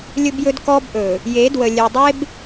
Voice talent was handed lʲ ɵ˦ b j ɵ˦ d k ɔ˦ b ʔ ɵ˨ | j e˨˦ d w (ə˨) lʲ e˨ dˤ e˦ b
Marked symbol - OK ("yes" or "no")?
yes